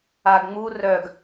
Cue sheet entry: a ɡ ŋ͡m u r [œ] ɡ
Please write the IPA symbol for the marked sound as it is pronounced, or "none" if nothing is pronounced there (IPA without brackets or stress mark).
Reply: œ